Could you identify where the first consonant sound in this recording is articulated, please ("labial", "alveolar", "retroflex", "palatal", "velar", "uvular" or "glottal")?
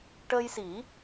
retroflex